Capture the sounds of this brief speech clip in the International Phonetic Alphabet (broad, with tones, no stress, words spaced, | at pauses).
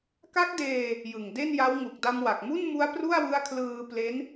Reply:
ka˦˥k̚deː˧ | jɯ˨˩ŋ de˥˩nja˦˥w ŋu˨˩k̚da˧mwa˨˩k̚mu˥˩n mu˦˥a̯pru˥˩a̯wɯ˦˥a̯kʰlɯː˧ ple˦˥n